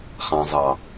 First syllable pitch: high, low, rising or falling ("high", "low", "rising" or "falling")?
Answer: low